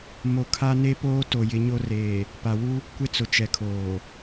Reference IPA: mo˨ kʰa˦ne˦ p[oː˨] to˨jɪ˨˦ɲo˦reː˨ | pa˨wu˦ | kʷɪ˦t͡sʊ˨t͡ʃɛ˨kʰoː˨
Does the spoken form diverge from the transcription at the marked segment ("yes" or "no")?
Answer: yes